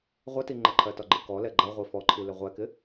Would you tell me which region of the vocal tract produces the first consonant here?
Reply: uvula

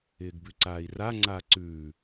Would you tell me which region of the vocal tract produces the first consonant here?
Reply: velum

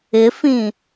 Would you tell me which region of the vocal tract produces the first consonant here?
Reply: lips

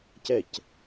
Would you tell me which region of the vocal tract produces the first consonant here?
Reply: palate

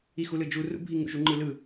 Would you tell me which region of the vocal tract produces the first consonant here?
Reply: velum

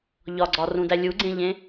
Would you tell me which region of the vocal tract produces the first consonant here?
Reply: palate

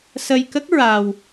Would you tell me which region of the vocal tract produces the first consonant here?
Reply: tongue tip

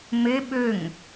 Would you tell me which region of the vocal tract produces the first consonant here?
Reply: lips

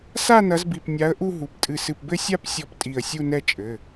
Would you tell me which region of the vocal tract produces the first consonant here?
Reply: tongue tip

